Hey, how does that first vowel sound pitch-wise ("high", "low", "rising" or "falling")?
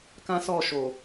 high